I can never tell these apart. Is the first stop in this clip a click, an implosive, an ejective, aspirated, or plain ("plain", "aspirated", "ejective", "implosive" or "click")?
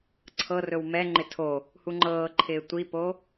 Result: click